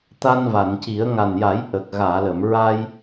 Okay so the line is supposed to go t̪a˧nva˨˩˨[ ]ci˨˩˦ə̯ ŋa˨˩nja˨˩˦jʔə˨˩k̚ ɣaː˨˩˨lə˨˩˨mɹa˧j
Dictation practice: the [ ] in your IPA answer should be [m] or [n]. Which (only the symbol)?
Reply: n